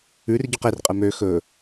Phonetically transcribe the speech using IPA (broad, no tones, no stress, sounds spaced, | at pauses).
ʉ r ɟ ø q e r qʼ ɛ m ø x ɵ